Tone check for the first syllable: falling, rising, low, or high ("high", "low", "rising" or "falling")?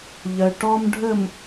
low